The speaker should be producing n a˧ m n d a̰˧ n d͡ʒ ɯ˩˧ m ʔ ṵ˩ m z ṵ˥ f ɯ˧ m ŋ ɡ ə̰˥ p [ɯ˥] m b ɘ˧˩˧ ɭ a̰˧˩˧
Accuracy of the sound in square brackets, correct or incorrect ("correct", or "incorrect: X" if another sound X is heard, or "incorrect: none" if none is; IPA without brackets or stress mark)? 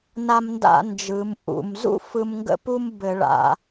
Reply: incorrect: u˥